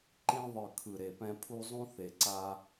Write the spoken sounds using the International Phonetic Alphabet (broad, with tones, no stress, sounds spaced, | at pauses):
ǃ ĩ˧ ðˤ ɯ˨˩ kʰ ɯ˨˩ ɾ e˨˩ p ɛ̃˧ pʰ u˧ zˤ ũ˧ θ e˨˩ ǀ a˧